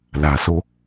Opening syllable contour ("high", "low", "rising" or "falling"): low